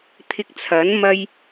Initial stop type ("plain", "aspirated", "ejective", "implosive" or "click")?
aspirated